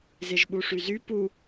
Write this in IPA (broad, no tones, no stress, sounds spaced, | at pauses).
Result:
z e ʒ ɓ u ʂ y z y p u